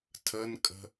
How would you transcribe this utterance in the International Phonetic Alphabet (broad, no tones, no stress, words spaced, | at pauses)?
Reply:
tʰənkʼə̤